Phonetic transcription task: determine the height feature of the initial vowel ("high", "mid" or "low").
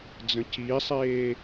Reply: mid